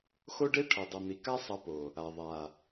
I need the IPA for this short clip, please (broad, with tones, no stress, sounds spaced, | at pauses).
x o˦ ɖ e˦ ʈʰ ʌ˨ dˤ ʌ˨ n̪ i˨ k a˦ sˤ ʌ˧ p o˨ | a˨ ðˤ a˨